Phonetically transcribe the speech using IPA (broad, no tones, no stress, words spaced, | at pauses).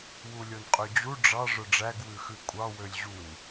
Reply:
wulʲonqʼød͡ʑu ɖ͡ʐɑ ʐœɖ͡ʐæɡ wʉxʉkʷʼɑ wølʲʑun